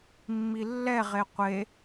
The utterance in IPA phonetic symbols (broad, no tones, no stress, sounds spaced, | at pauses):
mː i lː ɛ ʁ e qʷ e